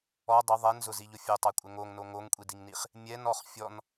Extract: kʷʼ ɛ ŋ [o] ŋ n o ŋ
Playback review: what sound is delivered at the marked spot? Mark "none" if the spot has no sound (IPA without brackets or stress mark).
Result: o